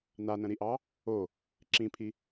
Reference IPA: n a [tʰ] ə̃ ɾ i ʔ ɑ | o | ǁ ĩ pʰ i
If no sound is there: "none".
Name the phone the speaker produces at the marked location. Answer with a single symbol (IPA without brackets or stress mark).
n